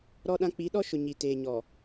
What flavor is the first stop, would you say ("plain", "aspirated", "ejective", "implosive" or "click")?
implosive